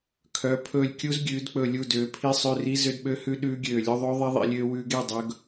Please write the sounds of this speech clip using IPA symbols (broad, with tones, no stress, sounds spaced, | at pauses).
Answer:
kʰ œ˨˦ pʰ ɵː˦˨ lʲ kʲ u˦˥ z ɡʲ ʉː˨˦ d k͡p ɵ˦˨ lʲ u˦˨ d øː˨˦ pʰ i˦˥ sˤ ø˧˥˧ r i˦˥ z ø˦˥ d ɓ ø˦˥ h ʉ˦˥ ɗ ʉː˦˥ ɡʲ øː˦˨ lʲ ɵ˧˥˧ ðˤ ø˦˥ ðˤ i˦˥ ðˤ ḭ˨˦ lʲ øː˦˥ w ʉː˦˥ ɡ e˧˥˧ dˤ ɵ˦˥ ɡ